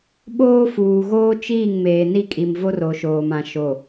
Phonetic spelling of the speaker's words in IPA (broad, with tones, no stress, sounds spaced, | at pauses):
ɓ oː˦ f uː˨ ɣ oː˦ t͡ʃ iː˦˨ ŋ m eː˨ n i˦˨ kʼ i˨ m v o˦ r o˨ ʃ oː˨ m ã˨ ʃ o˨